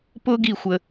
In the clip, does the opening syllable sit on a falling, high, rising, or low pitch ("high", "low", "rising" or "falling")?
high